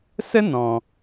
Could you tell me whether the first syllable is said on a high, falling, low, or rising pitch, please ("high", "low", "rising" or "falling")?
high